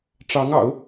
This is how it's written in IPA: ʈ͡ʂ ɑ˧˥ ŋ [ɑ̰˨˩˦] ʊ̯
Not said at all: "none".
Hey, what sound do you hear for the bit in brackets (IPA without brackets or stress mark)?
ɑ̰˨˩˦